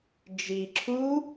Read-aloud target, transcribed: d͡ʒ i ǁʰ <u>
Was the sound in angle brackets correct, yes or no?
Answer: yes